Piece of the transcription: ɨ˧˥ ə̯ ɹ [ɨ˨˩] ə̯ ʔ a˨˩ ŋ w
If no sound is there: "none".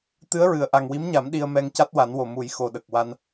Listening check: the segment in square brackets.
ɨ˨˩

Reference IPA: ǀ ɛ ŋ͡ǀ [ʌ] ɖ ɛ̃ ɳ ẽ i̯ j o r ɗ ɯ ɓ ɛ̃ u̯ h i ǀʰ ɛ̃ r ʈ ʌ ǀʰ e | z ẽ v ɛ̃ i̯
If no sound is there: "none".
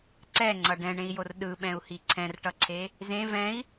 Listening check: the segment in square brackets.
ʌ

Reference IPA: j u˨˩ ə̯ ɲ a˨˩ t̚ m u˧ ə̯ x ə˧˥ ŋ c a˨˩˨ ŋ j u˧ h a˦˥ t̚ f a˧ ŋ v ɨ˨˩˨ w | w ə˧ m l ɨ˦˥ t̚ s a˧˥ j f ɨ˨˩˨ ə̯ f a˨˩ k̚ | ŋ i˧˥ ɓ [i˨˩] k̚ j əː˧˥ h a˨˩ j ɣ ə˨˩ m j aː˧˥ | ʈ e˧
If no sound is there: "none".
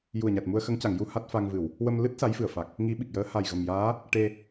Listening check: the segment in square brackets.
i˨˩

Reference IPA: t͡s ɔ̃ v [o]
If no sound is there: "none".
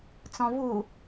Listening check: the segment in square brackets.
u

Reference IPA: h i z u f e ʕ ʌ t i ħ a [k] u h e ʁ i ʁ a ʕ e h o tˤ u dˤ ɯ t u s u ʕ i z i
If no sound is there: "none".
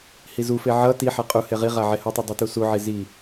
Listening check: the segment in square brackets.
qʼ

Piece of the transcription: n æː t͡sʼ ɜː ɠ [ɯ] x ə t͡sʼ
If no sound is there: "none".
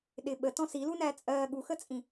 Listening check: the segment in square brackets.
u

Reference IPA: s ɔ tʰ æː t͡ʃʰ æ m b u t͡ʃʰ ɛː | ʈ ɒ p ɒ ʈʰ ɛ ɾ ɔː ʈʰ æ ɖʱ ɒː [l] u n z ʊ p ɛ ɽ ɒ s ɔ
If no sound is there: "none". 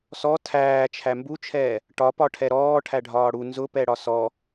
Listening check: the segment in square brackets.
ɽ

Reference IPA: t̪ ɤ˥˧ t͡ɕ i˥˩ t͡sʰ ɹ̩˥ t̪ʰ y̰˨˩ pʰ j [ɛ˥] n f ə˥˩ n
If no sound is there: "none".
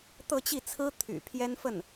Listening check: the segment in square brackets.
ɛ˥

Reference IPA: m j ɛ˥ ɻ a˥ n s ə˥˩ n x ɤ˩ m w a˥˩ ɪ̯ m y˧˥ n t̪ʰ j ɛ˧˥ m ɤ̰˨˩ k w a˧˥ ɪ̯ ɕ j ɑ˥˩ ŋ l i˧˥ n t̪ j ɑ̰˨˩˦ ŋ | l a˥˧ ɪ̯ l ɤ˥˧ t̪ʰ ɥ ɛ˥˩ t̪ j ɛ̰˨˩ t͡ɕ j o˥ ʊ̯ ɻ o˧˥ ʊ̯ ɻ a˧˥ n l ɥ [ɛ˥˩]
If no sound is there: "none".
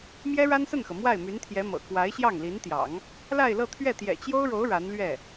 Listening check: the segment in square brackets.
ɛ˥˩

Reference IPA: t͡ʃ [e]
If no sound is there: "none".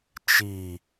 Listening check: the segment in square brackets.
i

